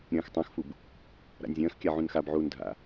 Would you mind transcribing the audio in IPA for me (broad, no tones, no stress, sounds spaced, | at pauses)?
ɾʲ ɐ̃ː x tˤ ã x f u b | ɾ a̰ nʲ zʲ ɐ̃ː x kʲ a ʕ ũ n x a b ʕ uː n dʱ a̰